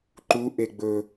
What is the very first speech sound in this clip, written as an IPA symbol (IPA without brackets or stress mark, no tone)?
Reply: ǃ